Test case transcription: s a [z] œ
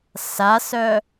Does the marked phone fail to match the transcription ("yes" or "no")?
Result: yes